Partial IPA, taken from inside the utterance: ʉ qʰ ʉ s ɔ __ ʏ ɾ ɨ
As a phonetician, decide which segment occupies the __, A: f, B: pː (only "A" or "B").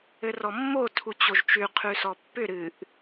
B